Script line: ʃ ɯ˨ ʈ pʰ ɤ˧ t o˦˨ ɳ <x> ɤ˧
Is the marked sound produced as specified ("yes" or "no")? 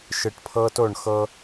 yes